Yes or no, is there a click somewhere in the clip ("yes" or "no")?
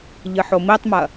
no